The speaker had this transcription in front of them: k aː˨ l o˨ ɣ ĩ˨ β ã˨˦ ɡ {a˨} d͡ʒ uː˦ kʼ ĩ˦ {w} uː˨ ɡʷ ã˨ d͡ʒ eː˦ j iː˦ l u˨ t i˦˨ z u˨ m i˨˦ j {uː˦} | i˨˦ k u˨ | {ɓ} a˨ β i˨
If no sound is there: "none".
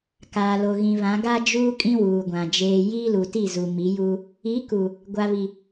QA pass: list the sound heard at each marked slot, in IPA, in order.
a˦, w, uː˦, ɡʷ

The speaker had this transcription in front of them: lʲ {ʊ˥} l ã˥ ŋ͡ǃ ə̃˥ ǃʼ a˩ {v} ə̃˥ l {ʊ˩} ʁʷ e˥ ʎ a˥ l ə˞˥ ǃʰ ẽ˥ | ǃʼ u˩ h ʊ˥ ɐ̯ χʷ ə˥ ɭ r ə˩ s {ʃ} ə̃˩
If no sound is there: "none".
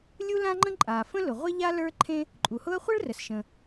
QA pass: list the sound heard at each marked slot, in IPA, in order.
u˥, f, ʊ˩, ʃ

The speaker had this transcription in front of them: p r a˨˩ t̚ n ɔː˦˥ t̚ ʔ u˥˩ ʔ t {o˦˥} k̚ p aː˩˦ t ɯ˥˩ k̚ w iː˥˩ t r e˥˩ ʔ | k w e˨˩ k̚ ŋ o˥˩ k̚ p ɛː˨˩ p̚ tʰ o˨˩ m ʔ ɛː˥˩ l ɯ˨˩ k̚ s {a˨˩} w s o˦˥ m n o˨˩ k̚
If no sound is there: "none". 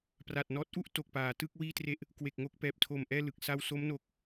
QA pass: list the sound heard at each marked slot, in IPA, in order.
o˨˩, a˧

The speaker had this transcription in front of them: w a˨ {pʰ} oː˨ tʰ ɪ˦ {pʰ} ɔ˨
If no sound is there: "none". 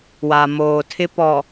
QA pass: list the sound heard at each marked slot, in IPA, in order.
m, p

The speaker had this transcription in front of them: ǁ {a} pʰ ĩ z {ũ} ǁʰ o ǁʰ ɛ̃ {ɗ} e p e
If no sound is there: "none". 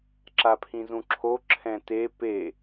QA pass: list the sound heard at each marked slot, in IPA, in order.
a, ũ, t

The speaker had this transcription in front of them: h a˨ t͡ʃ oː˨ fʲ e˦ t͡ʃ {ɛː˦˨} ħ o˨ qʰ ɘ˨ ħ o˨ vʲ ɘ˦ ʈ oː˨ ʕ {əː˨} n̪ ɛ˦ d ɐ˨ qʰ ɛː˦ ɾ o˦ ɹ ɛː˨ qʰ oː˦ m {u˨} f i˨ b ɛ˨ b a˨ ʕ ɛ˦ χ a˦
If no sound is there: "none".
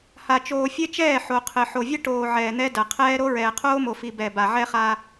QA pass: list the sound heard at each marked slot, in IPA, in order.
ɛː˦˨, ɛː˨, o˨

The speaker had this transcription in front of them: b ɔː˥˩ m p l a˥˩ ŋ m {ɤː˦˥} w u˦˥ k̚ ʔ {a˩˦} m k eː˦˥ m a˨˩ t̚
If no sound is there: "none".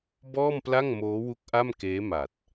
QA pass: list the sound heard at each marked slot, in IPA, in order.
oː˦˥, a˥˩

